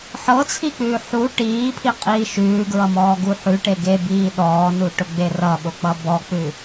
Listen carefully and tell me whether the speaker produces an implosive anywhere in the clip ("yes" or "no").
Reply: yes